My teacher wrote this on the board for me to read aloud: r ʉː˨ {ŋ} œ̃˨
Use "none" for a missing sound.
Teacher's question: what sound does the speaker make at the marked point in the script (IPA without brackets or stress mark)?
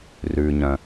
ɲ